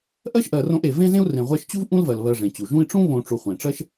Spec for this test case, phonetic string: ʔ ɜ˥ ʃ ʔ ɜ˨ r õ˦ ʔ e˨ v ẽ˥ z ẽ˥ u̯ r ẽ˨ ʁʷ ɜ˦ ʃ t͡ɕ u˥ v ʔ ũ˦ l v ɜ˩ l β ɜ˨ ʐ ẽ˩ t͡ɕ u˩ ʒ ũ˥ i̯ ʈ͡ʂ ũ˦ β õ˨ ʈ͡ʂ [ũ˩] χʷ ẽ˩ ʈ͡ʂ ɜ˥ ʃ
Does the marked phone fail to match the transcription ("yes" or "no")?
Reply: yes